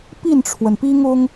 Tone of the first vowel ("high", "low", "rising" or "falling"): falling